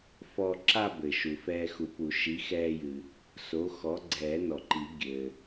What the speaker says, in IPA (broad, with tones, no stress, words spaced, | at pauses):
fɔ˧ǁa˥˧bɘ˩ ʃu˩fɛː˧xu˨˩˦pu˨˩˦ ʃi˩˥xɛː˧jɨ˩ | so˩˥xɔ˩˥ ɡ͡ǀɛː˨˩˦nɔ˩ǃi˨˩˦ ɡʲɘː˩